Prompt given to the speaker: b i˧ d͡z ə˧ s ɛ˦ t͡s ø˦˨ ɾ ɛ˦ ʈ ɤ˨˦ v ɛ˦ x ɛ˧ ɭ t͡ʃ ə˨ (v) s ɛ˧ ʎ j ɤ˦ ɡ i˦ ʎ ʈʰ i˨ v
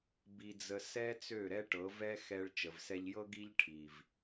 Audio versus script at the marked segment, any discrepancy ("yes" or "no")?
no